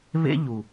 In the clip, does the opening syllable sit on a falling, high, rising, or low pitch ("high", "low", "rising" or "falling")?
high